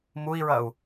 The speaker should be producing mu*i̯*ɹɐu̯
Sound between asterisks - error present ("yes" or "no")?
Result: no